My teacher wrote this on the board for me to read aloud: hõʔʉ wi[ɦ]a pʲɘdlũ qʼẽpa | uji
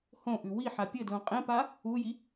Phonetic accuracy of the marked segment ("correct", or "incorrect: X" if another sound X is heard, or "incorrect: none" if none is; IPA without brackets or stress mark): incorrect: ħ